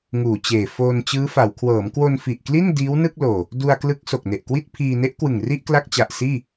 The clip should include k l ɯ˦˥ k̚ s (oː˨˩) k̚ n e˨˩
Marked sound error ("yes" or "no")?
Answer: yes